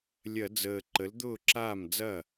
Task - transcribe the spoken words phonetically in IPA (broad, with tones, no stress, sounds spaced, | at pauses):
lʲ ɐ˧˩˧ d͡z əː˨˩ ǃ ə˩˥ l d̪ ʊː˥˩ ǁ aː˥˩ m d͡z ɐ˥˩